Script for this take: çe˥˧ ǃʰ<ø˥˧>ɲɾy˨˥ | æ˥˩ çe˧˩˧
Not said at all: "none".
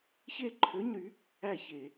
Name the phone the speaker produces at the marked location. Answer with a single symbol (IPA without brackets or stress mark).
ø˧˥˧